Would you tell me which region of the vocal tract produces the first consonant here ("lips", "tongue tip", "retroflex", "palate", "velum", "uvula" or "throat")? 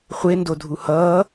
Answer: uvula